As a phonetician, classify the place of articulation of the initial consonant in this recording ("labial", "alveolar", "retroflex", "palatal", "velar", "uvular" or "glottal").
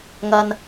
velar